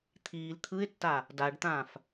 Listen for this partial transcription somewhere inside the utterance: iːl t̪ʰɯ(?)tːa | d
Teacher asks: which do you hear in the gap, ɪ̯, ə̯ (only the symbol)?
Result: ɪ̯